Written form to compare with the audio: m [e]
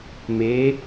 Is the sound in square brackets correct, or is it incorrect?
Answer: correct